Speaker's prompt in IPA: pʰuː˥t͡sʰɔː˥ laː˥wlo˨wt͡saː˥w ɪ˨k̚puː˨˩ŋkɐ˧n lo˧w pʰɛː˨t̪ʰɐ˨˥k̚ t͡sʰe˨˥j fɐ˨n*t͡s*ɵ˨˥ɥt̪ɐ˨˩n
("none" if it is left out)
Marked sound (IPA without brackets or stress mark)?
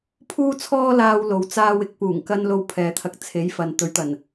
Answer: t̪